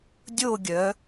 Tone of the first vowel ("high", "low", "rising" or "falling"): falling